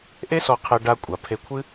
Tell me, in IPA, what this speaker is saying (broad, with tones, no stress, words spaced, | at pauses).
ʔe˦sɔ˧qʰe˧ ɖa˧ kʷʼa˨ pʰe˧kʷʰɨ˦